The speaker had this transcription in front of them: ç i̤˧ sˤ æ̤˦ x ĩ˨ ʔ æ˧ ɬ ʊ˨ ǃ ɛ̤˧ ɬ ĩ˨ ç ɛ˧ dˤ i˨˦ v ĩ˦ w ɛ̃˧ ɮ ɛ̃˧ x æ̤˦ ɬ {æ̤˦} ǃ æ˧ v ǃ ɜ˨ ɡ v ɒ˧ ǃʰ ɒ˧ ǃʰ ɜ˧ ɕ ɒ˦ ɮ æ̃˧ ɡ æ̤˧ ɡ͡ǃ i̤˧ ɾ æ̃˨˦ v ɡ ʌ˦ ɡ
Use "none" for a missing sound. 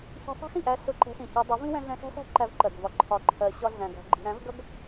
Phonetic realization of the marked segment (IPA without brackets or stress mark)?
æ̤˦